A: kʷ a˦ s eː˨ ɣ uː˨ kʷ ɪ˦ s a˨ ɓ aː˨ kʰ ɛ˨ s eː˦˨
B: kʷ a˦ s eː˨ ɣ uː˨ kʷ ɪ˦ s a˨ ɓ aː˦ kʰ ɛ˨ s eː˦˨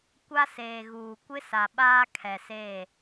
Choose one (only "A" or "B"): B